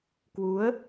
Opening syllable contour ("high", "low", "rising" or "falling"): rising